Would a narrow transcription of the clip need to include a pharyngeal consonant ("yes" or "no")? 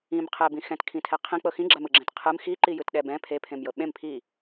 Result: no